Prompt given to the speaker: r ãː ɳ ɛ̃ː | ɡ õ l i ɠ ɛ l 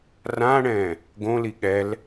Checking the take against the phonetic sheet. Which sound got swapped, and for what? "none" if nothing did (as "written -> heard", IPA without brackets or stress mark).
none